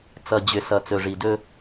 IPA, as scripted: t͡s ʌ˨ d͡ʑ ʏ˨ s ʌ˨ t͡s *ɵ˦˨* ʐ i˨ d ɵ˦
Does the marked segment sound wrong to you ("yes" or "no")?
yes